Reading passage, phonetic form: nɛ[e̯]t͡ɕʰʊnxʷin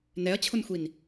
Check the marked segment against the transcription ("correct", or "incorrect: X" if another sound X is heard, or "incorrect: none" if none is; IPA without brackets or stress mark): incorrect: ɐ̯